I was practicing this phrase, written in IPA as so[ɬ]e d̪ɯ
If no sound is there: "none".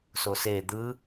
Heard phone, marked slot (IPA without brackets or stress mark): s